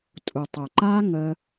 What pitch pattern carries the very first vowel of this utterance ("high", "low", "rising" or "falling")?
low